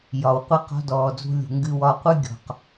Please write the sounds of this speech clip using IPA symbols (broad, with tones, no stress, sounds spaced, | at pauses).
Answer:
j ɒ˩ w qʷ i˧ q ɔ̤˧ d ɔː˩ d͡z ṳ˧ lʲ ṳ˩ ŋ ɡ ɨ˧ w ɒ˧ qʷ ɨ˥ ɡʲ ɔ̤˩ q